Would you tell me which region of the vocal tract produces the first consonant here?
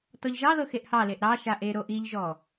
tongue tip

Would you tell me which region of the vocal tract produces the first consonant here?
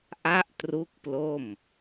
throat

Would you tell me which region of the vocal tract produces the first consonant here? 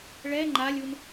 retroflex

